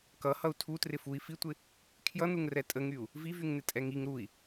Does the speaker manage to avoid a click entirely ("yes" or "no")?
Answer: yes